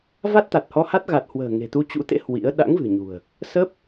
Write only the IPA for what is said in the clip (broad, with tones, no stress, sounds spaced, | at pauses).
v a˦˥ t̚ t̪ a˨˩ t̚ h ɔ˧ h a˦˥ t̚ ɣ a˨˩ t̚ h w ə̤ː˨˩ ŋ e̤˨˩ t̪ u˧ t͡ɕ ṵ˧˥ t̪ ḛ˧˥ h w ḭ˧˥ ə̯ ɗ a̰˧˥ ŋ v ɨ̤˨˩ ɲ ṳ˨˩ ə̯ | s ə˦˥ p̚